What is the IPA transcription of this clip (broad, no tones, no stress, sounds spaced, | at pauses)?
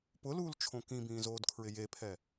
p ʊ l uː l t͡ʃʰ õ k ĩ b ĩː z oː d kʰ ɹ ɪ j e pʰ ɛ